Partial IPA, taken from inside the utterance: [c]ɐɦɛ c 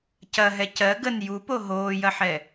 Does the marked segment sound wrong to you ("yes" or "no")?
no